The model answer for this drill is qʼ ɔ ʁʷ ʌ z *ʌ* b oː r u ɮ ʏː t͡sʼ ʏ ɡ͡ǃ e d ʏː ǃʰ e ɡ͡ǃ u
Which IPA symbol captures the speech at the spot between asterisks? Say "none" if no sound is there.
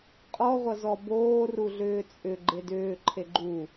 ɔ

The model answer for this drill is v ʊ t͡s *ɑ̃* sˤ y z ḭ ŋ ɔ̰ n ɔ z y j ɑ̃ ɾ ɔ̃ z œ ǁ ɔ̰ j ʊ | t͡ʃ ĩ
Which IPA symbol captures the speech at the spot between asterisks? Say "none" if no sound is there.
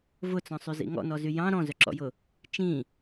ɔ̃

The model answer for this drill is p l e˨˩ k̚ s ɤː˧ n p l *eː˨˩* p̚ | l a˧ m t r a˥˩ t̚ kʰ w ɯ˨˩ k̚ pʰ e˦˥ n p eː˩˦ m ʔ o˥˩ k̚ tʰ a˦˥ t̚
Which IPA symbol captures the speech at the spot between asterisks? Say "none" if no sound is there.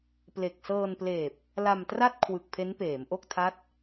eː˨˩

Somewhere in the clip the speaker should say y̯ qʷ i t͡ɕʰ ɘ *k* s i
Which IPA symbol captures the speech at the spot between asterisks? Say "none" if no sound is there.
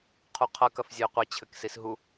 k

